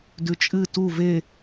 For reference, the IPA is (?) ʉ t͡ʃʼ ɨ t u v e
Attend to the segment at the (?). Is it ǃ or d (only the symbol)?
d